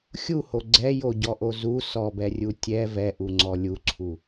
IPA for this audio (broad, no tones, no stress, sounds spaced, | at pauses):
xʲ u h o ɡ͡ǀ ɛ j o ɟ ɔ ʔ o z u s ɔ b ɛ rʲ u tʲ ɛ v ɛ ʔ u ŋ͡ǀ ɔ lʲ u ǀʰ u